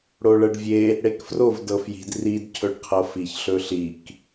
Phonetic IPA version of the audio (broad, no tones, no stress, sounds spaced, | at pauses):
ɽ o ɭ ɤ ɖ vʲ e | ɽ e k f r o v d ɤ f j i̤ d r i d cʰ ɵ ɖ qʰ ɤ f i ç ɬ ɵ ɬ i k